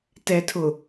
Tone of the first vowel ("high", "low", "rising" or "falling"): low